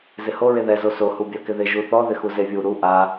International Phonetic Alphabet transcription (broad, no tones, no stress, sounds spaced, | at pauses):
z ɪ h o ɹ e ð ɛ z o s o h u bʲ a k ɪ ð ɪ ʒ u θ ɔ ð ɪ x u z e vʲ u ɾ u ʔ a